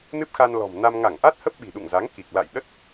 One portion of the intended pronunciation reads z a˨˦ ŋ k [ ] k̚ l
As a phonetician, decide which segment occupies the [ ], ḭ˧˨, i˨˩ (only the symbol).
i˨˩